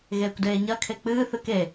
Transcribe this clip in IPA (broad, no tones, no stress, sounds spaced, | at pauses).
ɣ eː kʷ d eː ɲ ɐ kʰ e k͡p ɨː θ ɨ k e